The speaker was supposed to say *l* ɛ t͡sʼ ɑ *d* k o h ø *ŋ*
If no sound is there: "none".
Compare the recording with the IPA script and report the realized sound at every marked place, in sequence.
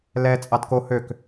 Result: l, d, k

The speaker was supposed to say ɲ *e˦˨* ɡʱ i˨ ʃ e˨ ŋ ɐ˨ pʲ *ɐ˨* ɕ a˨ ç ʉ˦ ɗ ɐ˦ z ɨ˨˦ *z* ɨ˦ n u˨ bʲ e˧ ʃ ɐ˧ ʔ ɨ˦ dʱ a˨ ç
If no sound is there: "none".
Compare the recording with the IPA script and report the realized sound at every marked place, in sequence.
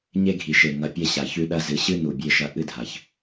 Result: e˦, ɐ˧, ɕ

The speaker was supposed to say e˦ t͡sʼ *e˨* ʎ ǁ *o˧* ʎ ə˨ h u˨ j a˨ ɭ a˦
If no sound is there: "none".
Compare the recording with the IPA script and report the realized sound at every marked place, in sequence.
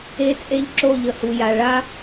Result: e˦, o˦˨

